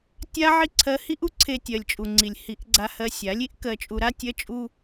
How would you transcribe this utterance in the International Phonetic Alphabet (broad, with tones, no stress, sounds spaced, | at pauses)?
tʲ a˦ ʕ i˦ ǀʰ ɜ˧ h i˦ ʔ u˦ ǀʰ e˧ tʲ ɜ˨ lʲ t͡ʃʼ u˨ ŋ͡ǀ i˨ lʲ h i˨˦ ʔ ɡ͡ǀ a˧ h ɜ˧ sʲ a˨˦ lʲ i˦ ʔ k ɜ˧ t͡ʃʼ u˧ ɾ a˦ tʲ ɜ˦ t͡ʃʼ u˦